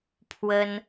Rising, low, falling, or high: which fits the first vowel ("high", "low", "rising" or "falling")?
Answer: high